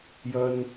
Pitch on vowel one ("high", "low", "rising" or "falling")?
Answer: high